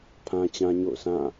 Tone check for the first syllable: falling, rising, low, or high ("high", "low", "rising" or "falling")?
high